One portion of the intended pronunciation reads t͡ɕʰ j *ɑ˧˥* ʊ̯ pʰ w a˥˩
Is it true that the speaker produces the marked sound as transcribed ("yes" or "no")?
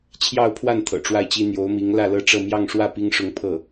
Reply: no